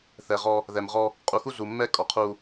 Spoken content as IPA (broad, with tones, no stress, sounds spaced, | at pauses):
θ ɛ˨ ʁ ɔ˦ | ð ɛ˨ m ʁ ɔ˦ | qʼ u˨ x u˦ z u˨ mː ɛ˦ kʼ ɔ˨ qʰ u˦